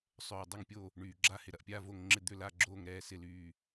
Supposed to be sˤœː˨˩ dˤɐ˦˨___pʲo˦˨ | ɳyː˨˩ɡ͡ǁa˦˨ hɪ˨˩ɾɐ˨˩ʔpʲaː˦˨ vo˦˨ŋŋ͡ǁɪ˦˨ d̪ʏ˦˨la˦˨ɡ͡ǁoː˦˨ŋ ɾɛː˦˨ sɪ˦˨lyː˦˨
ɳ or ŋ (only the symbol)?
ŋ